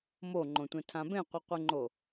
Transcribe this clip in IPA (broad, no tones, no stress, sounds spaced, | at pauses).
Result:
m o ŋ͡ǃ õ tʷ ɛ̃ tʰ ã b ẽ qʷ ɯ qʷ e ŋ͡ǃ o